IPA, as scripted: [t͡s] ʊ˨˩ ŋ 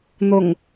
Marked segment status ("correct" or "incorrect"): incorrect